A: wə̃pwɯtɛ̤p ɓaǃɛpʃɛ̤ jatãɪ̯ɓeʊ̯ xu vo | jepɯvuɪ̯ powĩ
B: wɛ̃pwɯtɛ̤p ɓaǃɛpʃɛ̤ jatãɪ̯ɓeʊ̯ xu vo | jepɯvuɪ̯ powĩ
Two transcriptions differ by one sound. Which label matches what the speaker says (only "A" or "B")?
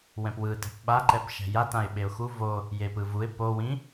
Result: B